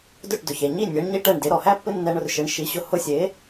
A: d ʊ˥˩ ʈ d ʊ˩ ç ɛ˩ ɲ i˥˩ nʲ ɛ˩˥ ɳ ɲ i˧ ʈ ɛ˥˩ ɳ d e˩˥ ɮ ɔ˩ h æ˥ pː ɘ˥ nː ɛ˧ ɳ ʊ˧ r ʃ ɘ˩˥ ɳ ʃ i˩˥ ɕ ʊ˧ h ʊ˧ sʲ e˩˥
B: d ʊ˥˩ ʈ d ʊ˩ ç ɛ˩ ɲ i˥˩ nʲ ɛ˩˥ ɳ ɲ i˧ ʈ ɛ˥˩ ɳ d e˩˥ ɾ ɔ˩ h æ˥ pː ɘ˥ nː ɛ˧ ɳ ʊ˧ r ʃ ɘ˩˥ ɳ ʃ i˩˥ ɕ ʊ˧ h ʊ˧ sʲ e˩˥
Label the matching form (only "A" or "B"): B